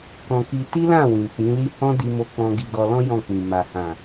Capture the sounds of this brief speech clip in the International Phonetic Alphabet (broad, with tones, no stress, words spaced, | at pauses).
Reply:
kɔ̃˧ki˧ ti˦lã˦˨ wĩ˨k͡pĩ˨˦li˦ hɔ̃˦di˧mo˧k͡pɔ̃˧ ɡi˧ɡɔ˧lɔ̃˦ jɔ̃˦˨k͡pĩ˨ ma˨hã˨